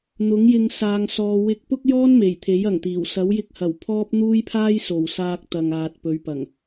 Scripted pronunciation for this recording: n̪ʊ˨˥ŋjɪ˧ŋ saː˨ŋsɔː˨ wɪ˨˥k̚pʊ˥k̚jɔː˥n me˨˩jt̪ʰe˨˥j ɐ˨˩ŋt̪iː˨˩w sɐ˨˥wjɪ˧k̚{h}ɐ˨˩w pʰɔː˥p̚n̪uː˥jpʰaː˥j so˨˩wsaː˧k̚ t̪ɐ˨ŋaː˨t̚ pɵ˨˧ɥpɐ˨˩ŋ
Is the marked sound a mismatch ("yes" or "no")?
no